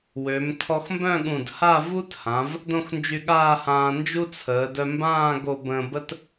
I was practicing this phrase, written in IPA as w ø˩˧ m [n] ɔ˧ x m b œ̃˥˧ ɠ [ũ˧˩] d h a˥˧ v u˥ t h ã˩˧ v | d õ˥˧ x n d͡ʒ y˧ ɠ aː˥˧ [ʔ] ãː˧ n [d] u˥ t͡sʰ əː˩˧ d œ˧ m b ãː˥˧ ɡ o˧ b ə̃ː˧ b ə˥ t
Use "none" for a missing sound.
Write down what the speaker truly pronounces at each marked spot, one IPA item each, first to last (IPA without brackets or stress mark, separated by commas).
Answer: tʰ, ũ˧˩, h, d͡ʒ